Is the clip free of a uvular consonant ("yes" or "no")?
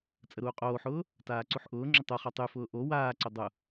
no